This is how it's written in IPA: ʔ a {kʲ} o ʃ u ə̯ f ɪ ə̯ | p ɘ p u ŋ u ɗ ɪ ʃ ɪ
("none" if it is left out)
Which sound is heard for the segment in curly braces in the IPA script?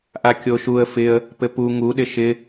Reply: kʲ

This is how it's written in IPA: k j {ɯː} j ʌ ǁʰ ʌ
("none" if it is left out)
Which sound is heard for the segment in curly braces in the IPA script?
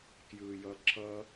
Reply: ɯː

